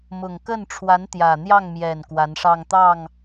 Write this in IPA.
m ʊ˨˩ ŋ k ə˥˩ n ʈ͡ʂʰ w a˧˥ n t̪ j ä˨˩ n̪ j ɑ˥˩ ŋ m j ɛ˨˩ n k w a˧˥ n ʂ ɑ˥˧ ŋ t̪ ɑ˥˩ ŋ

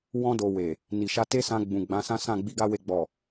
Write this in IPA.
w ɔ̃˧ d o˨ w e˨ | n i˨ ʃ a˧ t e˦ s ã˧ ɡ͡b ũ˨ ɡ͡b ã˨˦ s ã˦ s ã˦˨ ɡ͡b i˧ ɡ a˦ w e˧ ɡ͡b ɔ˨

